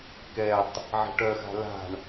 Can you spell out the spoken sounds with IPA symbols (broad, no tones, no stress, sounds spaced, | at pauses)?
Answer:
k ɛ tˤ | ʕ e̤ ʈ œ x a̤ l a̤ ɳ